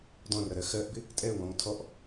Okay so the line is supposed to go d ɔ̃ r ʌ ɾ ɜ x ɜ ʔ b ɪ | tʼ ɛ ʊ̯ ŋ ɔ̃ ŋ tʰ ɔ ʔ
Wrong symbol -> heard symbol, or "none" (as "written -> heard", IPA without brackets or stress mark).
none